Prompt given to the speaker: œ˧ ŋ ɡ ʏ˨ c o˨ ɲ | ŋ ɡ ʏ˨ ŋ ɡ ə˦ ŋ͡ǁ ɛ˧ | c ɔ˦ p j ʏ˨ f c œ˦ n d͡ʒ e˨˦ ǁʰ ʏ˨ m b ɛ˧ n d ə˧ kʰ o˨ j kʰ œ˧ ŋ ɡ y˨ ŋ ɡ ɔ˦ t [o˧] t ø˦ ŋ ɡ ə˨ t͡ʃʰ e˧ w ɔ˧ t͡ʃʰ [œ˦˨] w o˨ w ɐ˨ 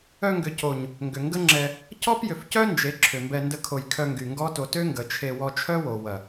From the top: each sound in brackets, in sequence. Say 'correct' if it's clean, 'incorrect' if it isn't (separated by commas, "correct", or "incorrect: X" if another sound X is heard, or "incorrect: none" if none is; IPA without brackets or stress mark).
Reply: correct, incorrect: œ˦